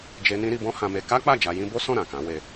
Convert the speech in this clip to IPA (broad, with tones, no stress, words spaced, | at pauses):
d͡ʒe˧ nĩ˦ɾi˧ bɔ̃˦ hã˧me˧ ka˦k͡pa˦˨ d͡ʒa˧jĩ˦ bo˦sɔ̃˦˨ ɾã˨kã˨˦we˧